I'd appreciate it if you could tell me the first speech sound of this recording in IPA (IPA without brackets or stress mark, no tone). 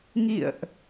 ŋ